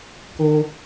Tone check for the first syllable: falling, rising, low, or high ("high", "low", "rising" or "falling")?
high